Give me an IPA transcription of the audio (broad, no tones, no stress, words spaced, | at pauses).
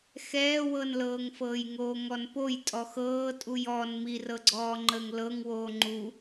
xɛːwɤnlɤːŋfɤːj ŋoːŋɔnpoj tʼɔxɤːtʼuj ɔn mirɤɡ͡ǀɔːŋ͡ǃəːŋ lɤŋwoː ŋ͡ǃu